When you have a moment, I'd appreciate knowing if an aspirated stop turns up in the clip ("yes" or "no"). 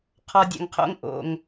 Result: yes